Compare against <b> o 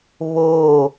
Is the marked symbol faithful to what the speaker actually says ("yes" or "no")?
no